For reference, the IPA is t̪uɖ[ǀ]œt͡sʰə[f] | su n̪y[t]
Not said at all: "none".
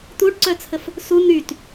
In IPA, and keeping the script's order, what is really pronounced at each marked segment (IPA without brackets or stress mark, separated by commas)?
ǀ, f, t